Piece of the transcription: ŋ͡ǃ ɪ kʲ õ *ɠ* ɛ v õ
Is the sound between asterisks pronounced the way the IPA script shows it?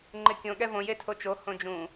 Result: yes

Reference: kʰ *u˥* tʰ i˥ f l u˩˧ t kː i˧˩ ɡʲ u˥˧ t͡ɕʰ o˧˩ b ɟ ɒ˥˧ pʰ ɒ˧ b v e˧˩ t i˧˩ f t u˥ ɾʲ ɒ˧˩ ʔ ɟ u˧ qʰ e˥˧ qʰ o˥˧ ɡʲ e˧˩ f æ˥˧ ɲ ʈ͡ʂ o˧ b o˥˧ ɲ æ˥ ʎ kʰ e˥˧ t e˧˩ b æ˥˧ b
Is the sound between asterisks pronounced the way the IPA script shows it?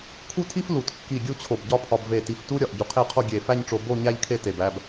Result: yes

